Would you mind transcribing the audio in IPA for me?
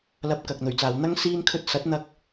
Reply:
l ɐ˧ p̚ k ɐ˨ k̚ n̪ ɵ˨˩ ɥ t͡s aː˨ w n̪ ɐ˥ ŋ s iː˧ n kʰ ɵ˧ t̚ s ɐ˨˥ t̚ n̪ ɐ˧ k̚

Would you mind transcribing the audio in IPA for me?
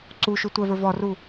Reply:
ǀ u ʃ u tʷ ɛ v ə˞ v ɔ r u

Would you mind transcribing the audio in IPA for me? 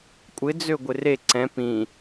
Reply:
kʷʼ ɪ d͡z ø ɡʷ ɪ r e ǀ ɛ̃ p ĩ

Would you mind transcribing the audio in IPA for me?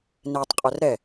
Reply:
n ɛ tˤ qʼ œ r ɾ ɛ

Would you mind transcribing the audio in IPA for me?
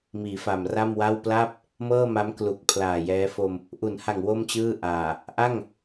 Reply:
m iː˩˦ f a˨˩ m r a˥˩ m w a˥˩ w p l a˥˩ p̚ | m ɤː˥˩ m a˦˥ m k l u˨˩ k̚ pʰ l aː˨˩ j ɛː˦˥ f o˧ m | ʔ u˩˦ n h a˨˩ ŋ w o˥˩ m t͡ɕ ɯː˥˩ ʔ aː˨˩ | ʔ a˥˩ ŋ

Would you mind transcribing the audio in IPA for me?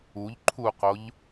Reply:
u ʎ ǃʰ u q o ʎ

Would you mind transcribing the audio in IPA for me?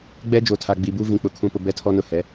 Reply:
ɡ͡b ɛ˦ d͡ʒ o˨ tʰ a˨ ɡ͡b i˨ b u˦ v ĩ˨ k͡p ʊ˨ kʰ ũ˨ p ʊ˨ b ɛ˦ tʰ ɔ˦ n ʊ˦˨ h ɛ˨˦

